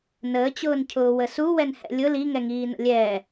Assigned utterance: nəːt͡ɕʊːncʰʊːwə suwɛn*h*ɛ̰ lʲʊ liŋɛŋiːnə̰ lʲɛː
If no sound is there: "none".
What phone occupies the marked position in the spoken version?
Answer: h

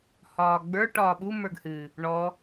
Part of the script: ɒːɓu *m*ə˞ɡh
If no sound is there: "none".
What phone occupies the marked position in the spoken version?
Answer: m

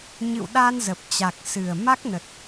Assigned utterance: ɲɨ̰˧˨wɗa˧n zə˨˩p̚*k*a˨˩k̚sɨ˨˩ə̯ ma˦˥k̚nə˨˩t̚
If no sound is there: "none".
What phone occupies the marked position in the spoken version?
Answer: t͡ɕ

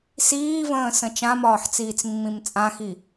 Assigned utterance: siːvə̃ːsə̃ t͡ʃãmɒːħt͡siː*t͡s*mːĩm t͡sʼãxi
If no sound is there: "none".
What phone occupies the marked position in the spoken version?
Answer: t͡s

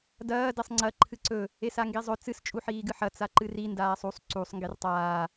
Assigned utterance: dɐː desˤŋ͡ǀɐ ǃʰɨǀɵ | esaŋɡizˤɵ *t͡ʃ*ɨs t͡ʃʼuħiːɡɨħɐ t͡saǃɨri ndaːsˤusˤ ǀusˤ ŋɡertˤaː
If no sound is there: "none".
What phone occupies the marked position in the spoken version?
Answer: t͡s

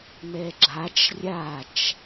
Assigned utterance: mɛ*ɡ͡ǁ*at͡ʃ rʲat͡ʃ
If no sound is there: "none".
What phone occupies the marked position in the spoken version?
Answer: ɡ͡ǁ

